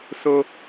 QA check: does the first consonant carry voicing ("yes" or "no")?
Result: no